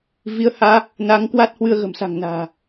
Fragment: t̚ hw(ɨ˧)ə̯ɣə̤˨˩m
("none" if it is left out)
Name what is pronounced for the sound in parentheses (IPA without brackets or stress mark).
ɨ˧